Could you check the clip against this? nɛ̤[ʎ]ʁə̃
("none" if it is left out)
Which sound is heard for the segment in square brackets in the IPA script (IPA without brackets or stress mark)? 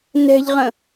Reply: ʎ